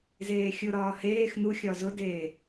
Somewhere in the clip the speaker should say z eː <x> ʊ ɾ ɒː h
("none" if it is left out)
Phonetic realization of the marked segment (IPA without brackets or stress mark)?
xʲ